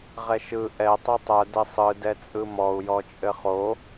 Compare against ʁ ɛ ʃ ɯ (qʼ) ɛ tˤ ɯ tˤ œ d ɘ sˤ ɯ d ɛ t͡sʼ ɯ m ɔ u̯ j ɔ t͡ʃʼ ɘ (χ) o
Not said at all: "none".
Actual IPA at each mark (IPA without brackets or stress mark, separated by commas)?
ʔ, χ